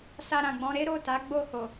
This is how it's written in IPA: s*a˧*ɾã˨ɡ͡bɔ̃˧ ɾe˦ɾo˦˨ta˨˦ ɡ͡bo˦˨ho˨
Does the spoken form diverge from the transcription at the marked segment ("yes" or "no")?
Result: no